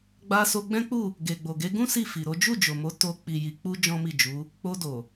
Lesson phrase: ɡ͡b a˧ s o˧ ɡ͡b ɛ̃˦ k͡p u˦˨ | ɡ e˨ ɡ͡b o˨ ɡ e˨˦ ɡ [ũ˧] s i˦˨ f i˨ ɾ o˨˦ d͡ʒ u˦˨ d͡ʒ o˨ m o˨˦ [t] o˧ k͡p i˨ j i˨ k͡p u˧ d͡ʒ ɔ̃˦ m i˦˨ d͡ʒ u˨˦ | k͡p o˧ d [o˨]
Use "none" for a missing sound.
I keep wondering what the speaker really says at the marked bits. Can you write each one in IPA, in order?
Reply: ũ˦, t, o˨

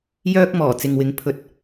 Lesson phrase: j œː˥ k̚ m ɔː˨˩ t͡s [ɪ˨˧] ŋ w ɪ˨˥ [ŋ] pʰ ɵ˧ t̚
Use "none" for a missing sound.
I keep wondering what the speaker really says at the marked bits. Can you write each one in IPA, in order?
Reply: ɪ˨, ŋ

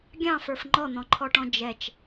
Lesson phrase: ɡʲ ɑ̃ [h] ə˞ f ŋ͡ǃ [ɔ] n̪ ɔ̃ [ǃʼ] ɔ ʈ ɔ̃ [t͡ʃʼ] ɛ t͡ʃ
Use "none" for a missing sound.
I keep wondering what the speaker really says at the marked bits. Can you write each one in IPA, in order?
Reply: f, ɔ, ǃʰ, d͡ʒ

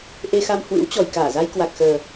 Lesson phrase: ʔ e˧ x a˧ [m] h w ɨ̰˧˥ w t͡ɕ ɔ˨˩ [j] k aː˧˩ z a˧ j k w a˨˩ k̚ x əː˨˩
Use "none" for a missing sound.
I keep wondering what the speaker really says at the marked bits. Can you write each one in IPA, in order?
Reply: m, j

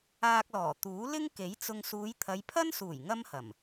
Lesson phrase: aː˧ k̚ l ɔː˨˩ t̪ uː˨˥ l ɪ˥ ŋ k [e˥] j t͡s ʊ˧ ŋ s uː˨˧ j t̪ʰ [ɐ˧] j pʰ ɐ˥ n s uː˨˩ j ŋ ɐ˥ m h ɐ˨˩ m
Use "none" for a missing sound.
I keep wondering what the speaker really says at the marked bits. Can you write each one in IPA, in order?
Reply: e˨˥, ɐ˨˧

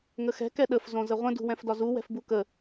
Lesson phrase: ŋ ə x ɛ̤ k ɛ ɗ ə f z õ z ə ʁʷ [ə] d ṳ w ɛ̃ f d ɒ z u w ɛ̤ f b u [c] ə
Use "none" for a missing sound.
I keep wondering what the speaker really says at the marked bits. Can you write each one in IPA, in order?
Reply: ə̃, k

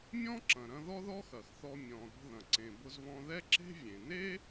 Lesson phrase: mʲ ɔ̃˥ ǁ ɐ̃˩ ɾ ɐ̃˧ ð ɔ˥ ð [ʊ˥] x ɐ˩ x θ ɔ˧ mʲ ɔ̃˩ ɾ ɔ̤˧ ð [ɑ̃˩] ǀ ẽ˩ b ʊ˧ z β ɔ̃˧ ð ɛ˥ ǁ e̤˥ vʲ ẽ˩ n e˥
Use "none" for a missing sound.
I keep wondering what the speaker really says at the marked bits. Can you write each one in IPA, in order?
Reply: ɔ˥, ɐ̃˩

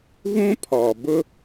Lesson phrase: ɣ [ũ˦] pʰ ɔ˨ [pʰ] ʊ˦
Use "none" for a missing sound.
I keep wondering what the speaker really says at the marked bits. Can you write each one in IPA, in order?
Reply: ũ˦, b

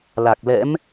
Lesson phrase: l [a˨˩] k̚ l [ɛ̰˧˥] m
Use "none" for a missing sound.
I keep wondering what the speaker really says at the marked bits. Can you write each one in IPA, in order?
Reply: a˨˩, ɛ̰˧˥

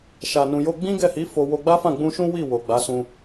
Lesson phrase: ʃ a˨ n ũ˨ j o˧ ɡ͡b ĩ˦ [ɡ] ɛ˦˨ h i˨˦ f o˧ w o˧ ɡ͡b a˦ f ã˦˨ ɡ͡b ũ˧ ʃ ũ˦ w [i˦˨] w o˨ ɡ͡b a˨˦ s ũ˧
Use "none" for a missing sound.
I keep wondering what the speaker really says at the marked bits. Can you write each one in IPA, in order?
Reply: ɡ, i˦˨

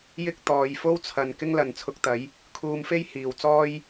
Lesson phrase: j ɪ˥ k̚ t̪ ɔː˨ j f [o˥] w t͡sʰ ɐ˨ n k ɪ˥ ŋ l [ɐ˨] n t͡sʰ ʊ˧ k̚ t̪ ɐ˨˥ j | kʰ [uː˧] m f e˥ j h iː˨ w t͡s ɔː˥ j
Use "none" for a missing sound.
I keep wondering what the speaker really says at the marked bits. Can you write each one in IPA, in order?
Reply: o˥, ɐ˨, uː˧

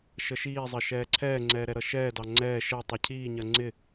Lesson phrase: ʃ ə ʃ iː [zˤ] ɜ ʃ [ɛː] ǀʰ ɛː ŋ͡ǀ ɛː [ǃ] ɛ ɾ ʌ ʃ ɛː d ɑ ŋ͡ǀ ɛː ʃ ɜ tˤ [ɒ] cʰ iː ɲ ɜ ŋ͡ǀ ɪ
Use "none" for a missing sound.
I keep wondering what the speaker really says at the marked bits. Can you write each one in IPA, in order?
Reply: zˤ, ɛː, ɾ, ʌ

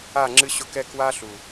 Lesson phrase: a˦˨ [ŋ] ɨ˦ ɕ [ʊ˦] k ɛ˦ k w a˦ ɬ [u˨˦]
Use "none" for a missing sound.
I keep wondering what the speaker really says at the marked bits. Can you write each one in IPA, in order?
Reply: ŋ͡ǁ, ʊ˦, u˨

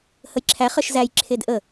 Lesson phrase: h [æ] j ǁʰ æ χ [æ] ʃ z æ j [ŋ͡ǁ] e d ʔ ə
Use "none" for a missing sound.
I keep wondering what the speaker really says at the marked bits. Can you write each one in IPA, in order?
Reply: ə, ə, ǁʰ

